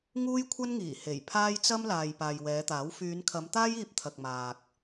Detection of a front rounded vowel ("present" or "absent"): present